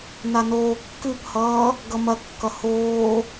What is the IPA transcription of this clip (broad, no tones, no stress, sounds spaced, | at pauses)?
n a n oː kː ʉ p h ʌː | ɡ ʌ m ɐ kː ʌ h oː